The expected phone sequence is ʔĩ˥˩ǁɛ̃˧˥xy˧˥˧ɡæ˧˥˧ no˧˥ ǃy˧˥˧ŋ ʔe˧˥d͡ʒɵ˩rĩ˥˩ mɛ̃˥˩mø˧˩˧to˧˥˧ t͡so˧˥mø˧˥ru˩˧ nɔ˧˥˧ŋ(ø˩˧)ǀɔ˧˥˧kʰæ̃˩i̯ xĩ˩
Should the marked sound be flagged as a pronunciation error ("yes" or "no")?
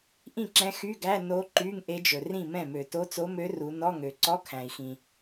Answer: no